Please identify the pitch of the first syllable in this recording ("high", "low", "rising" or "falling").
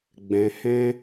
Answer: low